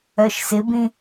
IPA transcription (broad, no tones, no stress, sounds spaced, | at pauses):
œ ʃ s ɪ b ĩ